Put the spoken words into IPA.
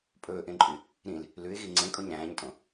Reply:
pʼ ɵː ʔ ẽ ǃʼ y | ɾ ĩ l | l ʉ ɪ̯ ɣ i ŋ͡ǀ ẽ kʼ o ɲ ɾ æ̃ː ɲ tʼ õ

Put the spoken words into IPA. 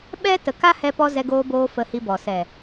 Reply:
ɓ ɛ˦ t ə˨ k a˦ h ɛ˧ p ɔ˧ z ɛ˧ ɡ oː˧ b oː˧ f ə˧ h i˧ b ɔ˨ s ɛ˨

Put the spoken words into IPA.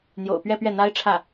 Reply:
n̪ j o̰˨˩ ʊ̯ p ɥ ɛ˥˧ p ɥ ɛ˥˩ n̪ a˥ ɪ̯ ʈ͡ʂʰ ä˥˩

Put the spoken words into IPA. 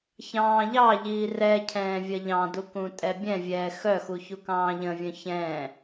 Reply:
ç ɑ̃ː ʎ ɑ ʎ iː r ɛ cʰ ɛ̃ː vʲ ɐ ʎ ɑ̃ d u k ũ tʼ ɛ bʲ ɛ̃ vʲ ɛː x œ x u ç u k ɑ̃ː ʎ ə̃ vʲ œ̃ ç ɛ̃ː

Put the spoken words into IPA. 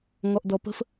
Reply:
ŋ ɔ ʔ d ɔ p ə̤ f

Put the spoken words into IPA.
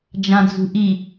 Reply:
d͡ʒ ã d͡z ṳ ʔ i

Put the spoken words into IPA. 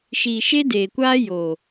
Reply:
ʃ iː˨ ʃ e˦ d eː˨ kʷ aː˦ j o˨

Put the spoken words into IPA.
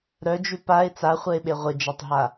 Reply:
ɾ œ d͡ʒ ʉ p a ɪ̯ t͡s a χʷ ɛ ɪ̯ ɓ e ʁʷ ɪ d͡ʒ a tˤ ɦ a

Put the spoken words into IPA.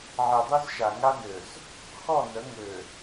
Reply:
ʕ e˨ dˤ y˦ z ʃ a˨ ŋ a˦ n ø˨ z | x ɔ˦˨ n ə˨˦ ŋ ø˨

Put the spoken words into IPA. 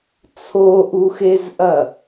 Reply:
t͡sʰ o ʔ u x e z ʔ ɐ

